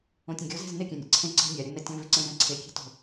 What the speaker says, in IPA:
õ tʲ ũ ɡʲ o z e̤ z n ɪ kʲ ɛ̃ nʲ ḛ ǀʰ ẽ ǀ e̤ nʲ a ɾʲ ʊ n ɛ tʲ ɔ̃ v ɪ ǀ ẽ v ɛ̃ ǀʰ e kʲ e̤ t o̤

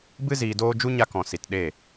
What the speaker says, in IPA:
b ɨ˦ z iː˧ d oː˦ d͡ʒ u˦ ɲ a˧ k ɔ̃˨ s i˨ t ɗ e˦˨

